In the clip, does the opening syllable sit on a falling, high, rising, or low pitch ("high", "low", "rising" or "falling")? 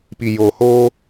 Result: low